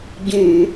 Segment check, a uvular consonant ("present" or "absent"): absent